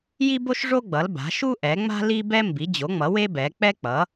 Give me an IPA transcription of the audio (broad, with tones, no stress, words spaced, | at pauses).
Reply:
ji˥bo˥ʃʐo˥ɡ͡bʌ˩˥l ba̤˩˥ʃu˥ʔɛ˩˥ŋ͡ma̤˥ li˥bɛ˥ mbi˩˥d͡ʑo˩˥ŋ͡mʌ˩˥ we˥bɛ˩˥ k͡pɛ˥k͡pʌ˩˥